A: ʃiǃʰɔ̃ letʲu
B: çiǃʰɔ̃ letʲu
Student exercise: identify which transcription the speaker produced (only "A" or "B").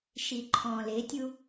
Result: A